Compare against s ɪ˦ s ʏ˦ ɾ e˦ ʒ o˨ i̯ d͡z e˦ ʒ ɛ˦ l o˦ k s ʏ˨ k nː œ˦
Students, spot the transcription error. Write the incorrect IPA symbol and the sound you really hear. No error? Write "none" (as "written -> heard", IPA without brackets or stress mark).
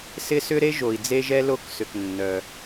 none